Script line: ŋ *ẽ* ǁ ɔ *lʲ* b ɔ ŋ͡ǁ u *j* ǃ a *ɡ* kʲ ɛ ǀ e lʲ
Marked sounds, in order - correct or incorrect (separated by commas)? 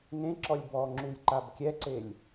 correct, correct, correct, incorrect